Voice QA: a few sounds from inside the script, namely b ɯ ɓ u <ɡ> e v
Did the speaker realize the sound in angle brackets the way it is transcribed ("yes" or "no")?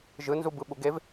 yes